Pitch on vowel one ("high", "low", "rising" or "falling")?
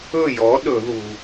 falling